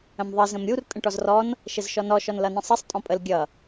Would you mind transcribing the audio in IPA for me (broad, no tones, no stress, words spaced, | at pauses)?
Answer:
ə̃mðˤɘ zə̃mɾʲur tʼə̃ʈɔzrɔn | ʃəzʃɔnɔ ʃɔnlʌnə̃sˤɘsˤ tʼɔ̃pʼəl ɡʲʌ